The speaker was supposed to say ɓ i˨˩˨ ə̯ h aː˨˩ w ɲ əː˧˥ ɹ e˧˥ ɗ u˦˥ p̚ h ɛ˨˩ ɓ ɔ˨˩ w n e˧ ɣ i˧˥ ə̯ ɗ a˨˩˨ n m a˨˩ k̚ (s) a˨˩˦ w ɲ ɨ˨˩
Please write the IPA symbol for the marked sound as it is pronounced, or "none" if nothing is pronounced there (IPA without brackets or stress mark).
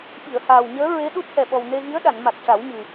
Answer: ʂ